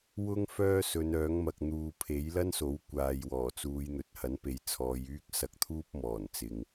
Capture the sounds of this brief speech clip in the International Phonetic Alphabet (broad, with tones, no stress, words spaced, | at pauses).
wʊ˥ŋ fœː˥sɵ˨˧nœː˨˥ŋmɐ˨k̚ n̪uː˨ pʰe˨˥j lɐ˥nso˨˥w kʷaː˨jwɔː˨˩t͡suː˨˧j n̪ɵ˨t̚hɐ˨˥npe˨˧j t͡sʰɔː˨˧jyː˥k̚ sɐ˧k̚t̪ʰuː˥p̚mɔː˨˩nt͡sɪ˨ŋ